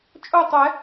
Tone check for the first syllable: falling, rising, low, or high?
falling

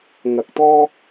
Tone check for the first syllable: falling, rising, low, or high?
rising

